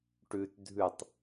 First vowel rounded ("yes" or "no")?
yes